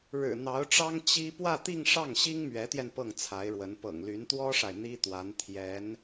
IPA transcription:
ɻ ɻ̩˨˩ n̪ ɑ˧˥ ʊ̯ ʈ͡ʂ ɑ˥ ŋ t͡ɕ i˥ p w ä˥˧ t̪ i˥˧ ŋ ʂ ɑ˥˩ ŋ ɕ i˥ ŋ m ɥ ɛ˧˥ t̪ j ɛ˧ n p ɤ˥˩ ŋ t͡sʰ a˧˥ ɪ̯ ɻ w ə˧˥ n p ɤ̰˨˩ ŋ l y˧˥ n t̪ w ɔ˥ ʂ a˨ ɪ̯ n̪ i˥ t̪ w a˧˥ n t̪ʰ j ɛ˧˥ n

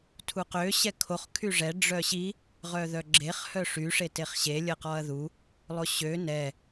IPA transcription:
tʰ u q ø ɕ ɛ kʰ o χ kʰ y ʐ ɛ ɖ͡ʐ œ ɕ i | ʁ œ ð œ ɡ͡ǁ e χ h œ ʂ y ʂ e t e χ ɕ e lʲ ə q ɔ ɐ̯ ð u | lˠ o ɕ ø n ɛ

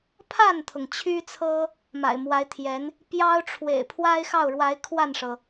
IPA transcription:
pʰ a˥˩ n t̪ʰ ʊ˩ ŋ t͡ɕʰ y˥ t͡sʰ ɤ˥ | m a̰˨˩ ɪ̯ m w a˧˥ ɪ̯ t̪ʰ j ɛ˧˥ n | p j ɑ˥ ʊ̯ ʈ͡ʂʰ w ḛ˨˩ ɪ̯ pʰ w a˥ ɪ̯ x ɑ˥˩ ʊ̯ ɻ w a˧˥ ɪ̯ kʰ w a˥˩ n ʂ ɤ˩

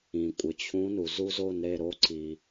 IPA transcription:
ĩ˩ kʷʼ ɪ˩ t͡ɕʰ ũ˨˥ n u˩ z u˦˥ z o˥˨ n ɾ e˥˨ ɾ o˨˥ ǀ i˩

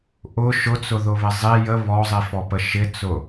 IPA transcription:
ʔ ʊ ʃ ʊ t͡s ʊ ð ʊ β ɪ zˤ i j ə β ɔ zˤ i f ɔ p ə ʃ ɪ t͡s ʊ

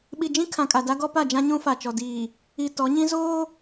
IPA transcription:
ɓ i˨ d͡ʒ ĩ˦ kʰ ã˨ kʼ a˨ d a˦ ɡ ɔ˦ p a˦˨ d͡ʒ ã˦ ɲ ũ˦ f a˨ t͡ʃ ɔ˨ d iː˨ | i˨ t ɔ˨˦ ɲ ĩ˦ z oː˦

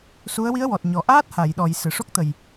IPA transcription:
s u˧˥ ə̯ w i˧˥ ə̯ w ɔ˨˩ t̚ ɲ ɔ˨˩ ʔ aː˦˥ t̚ h a˨˩˨ j ɗ ɔ˨˩˨ j s ɨ˨˩˨ ʂ o˦˥ k̚ t̪ ə˨˩ j

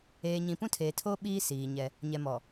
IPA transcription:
eː˨ ɲ ĩ˨ p ũ˦ tʰ eː˨ tʰ oː˦ ɓ iː˦ s iː˨ ɲ ɛ˦ | ɲ ɛ˨ m ɔ˨

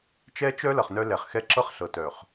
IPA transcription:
t͡ʃ ɛ˦ t͡ʃ œ˦ l ʌ˨ χ n œ˦ l ɛ˨ χ x ɛ˦ ǁ ɤ˦ χ ɬ ɤ˨ t œ˨ χ

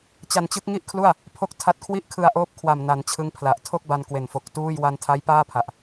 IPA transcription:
t͡ɕ a˧ n t͡ɕ ɯ˦˥ k̚ ŋ i˥˩ ʔ kʰ l u˥˩ a̯ | pʰ o˦˥ k̚ tʰ a˦˥ t̚ kʰ w i˥˩ ʔ kʰ ɯ˧ a̯ ʔ oː˦˥ p̚ kʰ w a˨˩ m n a˩˦ n t͡ɕʰ ɯ˦˥ ŋ pʰ l a˨˩ ʔ tʰ o˥˩ k̚ b a˧ n k w e˨˩ n f o˨˩ k̚ t uː˥˩ j w a˧ n tʰ a˦˥ j p aː˥˩ pʰ a˨˩ ʔ

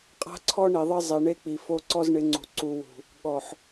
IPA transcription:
qʼ a̤˦ ǀʰ ɔ˦ ɳ i˨ ðˤ ɪ˦ zˤ i˨ ɳ e˦ k͡p i˨ f o˦ ǀ ɔ˦ z ɳ ɪ˨˦ ŋ͡ǀ ṳ˨ ǀ u˨ w ṳ˨ | ɠ ɔ˨ ħ

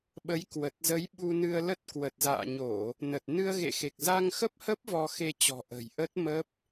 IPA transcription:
ɓ ə˨˦ j k w ə˨˩ t̚ z ə˨˦ j ɓ u˧ n ɨ˧ ə̯ l ə˦˥ t̚ k w ə˨˩ t̚ z a̰ː˧˨ ɲ o˧˩˨ | n ə˨˩ t̚ n ɨ˧ ə̯ ɣ ḛ˧˨ x e˨˩ k̚ z a˧ ŋ x ə˦˥ p̚ h ə˦˥ p̚ v ɔ˧ x e˧ t͡ɕ ɔ̤˨˩ ʔ ə̤˨˩ j ʔ ə˦˥ t̚ m ə˦˥ p̚

